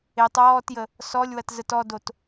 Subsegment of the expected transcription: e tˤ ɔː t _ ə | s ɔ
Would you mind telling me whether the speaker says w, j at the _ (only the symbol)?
j